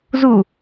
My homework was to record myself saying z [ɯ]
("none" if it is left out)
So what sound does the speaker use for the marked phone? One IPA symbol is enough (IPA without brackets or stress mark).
u